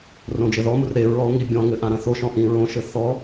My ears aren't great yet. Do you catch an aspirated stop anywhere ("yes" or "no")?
no